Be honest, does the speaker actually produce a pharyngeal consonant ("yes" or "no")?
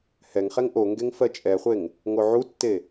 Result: yes